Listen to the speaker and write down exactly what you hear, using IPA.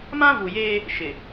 m ã˦ v u˨ j eː˦ | ʃ ɪ˨

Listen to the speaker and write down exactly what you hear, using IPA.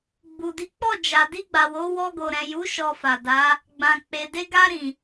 ɡ͡b u˨ d i˨˦ k͡p ɔ˦˨ d͡ʒ a˨ d i˧ ɡ͡b a˨ w o˨˦ w ɔ˧ ɡ o˨ ɾ ɛ̃˨ j u˨˦ ʃ ɔ˧ f a˨ d a˨˦ | ɡ͡b ã˨ k͡p e˨ d e˧ ɡ a˧ ɾ ĩ˨

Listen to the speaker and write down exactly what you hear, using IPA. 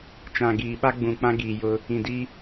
t͡ʃ ã˨ ɡ iː˨ ɓ a˦ ɡ͡b ũ˨ k͡p ã˦ ɡ iː˨ j ʊ˦ | ĩ˨ d i˦

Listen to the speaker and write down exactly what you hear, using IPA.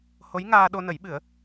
h o˧˥ j ŋ aː˧ ɗ o˧ n ə˨˩˦ j ɓ ɨ˨˩˦ ə̯

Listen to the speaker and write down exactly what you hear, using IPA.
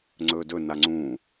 ŋ͡ǀ ɵː d ɵ n a ŋ͡ǀ ũː

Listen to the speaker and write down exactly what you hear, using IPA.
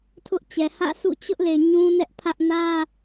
tʰ ʊ˦ ʔ t͡ɕ ɛ˨ h ä̰˦˨ s ṵ˦˨ t͡ɕ ʊ˦ ʔ l e˨ ɲ ũ˦ n ɛ˦ ʔ pʰ ä˦ ʔ n ä˦

